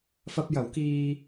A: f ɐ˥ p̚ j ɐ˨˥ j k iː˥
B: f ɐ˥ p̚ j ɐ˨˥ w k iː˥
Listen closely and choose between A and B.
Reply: B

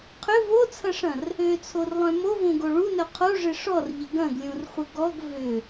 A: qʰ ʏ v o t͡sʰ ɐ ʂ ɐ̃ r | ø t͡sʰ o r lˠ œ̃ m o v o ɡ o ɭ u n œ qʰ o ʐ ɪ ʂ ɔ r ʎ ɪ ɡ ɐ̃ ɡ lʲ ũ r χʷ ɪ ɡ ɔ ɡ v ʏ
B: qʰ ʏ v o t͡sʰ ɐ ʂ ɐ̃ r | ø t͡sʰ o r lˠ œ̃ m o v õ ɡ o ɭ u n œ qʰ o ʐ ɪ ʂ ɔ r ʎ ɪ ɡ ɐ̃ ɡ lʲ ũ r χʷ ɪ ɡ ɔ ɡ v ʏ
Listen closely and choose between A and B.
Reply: B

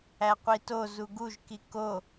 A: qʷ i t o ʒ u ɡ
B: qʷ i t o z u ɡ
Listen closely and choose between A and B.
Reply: B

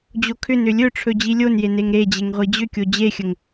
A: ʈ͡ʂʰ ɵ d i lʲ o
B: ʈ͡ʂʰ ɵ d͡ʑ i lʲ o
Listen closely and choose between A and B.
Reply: B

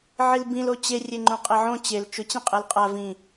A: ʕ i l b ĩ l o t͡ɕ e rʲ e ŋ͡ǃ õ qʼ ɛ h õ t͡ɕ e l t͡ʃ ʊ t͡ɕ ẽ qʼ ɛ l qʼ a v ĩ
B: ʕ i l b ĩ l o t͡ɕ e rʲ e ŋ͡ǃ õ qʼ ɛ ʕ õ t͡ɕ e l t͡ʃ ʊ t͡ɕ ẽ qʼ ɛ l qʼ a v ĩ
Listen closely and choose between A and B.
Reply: B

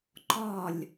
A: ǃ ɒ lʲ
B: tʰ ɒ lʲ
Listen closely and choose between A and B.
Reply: A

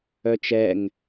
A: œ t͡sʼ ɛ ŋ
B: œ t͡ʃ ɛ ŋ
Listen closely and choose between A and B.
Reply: B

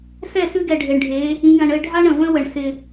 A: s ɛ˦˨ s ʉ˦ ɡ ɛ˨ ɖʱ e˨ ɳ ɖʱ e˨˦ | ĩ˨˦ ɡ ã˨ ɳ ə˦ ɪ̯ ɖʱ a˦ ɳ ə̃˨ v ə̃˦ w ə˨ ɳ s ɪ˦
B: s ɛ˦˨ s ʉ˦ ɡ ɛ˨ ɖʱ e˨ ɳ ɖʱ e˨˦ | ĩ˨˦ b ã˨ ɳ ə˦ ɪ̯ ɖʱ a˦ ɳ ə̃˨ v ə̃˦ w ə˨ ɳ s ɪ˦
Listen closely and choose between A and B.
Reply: A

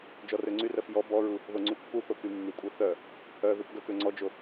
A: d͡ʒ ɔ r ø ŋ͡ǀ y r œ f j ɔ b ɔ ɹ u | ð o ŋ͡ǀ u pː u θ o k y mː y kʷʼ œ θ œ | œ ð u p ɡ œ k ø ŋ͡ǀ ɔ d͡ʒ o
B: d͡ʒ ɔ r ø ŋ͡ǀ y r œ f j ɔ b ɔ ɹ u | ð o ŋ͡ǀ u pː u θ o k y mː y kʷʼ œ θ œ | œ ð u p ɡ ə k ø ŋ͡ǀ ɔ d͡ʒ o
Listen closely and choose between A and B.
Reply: A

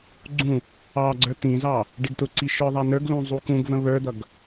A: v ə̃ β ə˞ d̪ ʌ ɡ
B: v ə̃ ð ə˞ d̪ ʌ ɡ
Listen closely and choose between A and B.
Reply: A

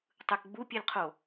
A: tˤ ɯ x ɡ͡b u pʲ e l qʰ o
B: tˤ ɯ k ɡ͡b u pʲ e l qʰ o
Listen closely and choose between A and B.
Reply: B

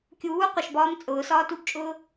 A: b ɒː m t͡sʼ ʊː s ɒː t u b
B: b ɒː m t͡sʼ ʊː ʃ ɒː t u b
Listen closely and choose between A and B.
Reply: A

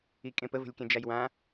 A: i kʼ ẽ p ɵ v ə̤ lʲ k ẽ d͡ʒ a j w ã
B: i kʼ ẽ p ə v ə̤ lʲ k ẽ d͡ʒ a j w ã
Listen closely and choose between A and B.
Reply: B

